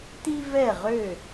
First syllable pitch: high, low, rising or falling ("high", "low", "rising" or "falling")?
high